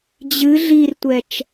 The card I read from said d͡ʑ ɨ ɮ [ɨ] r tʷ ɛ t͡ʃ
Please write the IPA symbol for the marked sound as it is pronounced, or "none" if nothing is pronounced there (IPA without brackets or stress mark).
i